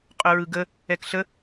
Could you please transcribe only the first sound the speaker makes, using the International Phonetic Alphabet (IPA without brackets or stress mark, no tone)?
qʼ